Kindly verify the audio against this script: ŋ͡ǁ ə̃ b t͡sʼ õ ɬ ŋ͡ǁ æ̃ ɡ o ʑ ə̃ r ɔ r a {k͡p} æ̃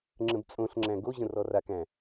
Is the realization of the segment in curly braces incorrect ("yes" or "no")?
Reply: yes